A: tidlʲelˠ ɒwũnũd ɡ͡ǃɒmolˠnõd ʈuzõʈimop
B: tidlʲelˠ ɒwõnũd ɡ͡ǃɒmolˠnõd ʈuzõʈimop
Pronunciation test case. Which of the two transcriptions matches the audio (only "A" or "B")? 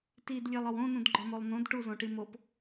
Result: B